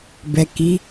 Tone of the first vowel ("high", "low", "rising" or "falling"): low